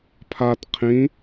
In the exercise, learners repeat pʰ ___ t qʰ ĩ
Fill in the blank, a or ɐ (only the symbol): a